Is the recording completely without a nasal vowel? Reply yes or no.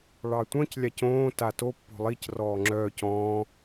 no